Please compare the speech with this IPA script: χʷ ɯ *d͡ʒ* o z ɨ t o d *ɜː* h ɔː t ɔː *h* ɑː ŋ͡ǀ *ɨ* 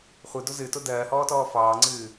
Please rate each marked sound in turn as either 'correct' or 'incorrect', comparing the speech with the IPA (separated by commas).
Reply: incorrect, correct, incorrect, incorrect